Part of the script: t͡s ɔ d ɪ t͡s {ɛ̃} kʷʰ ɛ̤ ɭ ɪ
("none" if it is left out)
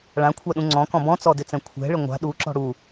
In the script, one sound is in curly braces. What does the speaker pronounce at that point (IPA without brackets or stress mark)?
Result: ɛ̃